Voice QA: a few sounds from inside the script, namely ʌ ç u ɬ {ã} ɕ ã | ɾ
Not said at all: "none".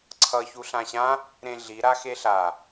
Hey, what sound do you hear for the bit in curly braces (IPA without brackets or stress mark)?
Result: ã